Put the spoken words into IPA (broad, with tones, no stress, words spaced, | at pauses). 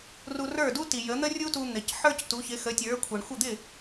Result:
ru˧rə˞˥˩du˥ti˩ jə˩˥n̪ə˥ rʲu˥tu˧ n̪ɪ˩cħə˞˥c tu˩˥çɪ˩˥xə˩˥ tʲə˞˩˥ kʷʰə˩ɳxʷə˥˩ d̪ɪ˥˩